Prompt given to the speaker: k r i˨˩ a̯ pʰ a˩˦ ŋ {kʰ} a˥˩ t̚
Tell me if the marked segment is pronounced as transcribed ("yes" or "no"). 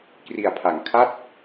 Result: yes